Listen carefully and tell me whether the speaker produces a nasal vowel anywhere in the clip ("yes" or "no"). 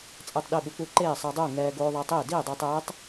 no